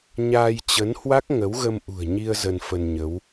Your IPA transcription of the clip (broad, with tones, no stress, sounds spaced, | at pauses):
ɲ aː˧ j t͡ɕ ə˨˦ n h w a˦˥ k̚ ŋ ə˨˦ w ɣ ə˧ m ʔ ṳ˨˩ ə̯ ɲ i˧ ə̯ z ə˧ n f ə˧ n ɲ ə˨˦ w